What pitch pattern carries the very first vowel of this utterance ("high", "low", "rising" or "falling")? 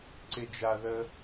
low